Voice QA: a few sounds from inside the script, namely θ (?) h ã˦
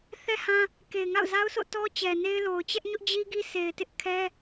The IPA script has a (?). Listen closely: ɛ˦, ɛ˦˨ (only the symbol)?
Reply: ɛ˦